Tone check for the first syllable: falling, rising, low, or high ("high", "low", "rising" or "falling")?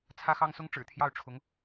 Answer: high